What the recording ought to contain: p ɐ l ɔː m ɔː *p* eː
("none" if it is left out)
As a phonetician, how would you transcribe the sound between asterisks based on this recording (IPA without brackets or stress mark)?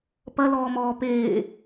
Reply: p